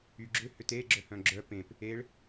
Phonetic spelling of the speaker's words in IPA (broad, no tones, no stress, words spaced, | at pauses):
yɡ͡ǁʏ hʏte ɡ͡ǁœhœ̃ɡ͡ǁœ pẽp | eɭ